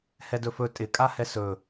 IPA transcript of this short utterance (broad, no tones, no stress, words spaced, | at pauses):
hɛdɵfɵ tʼɪ kʼahɛsɵ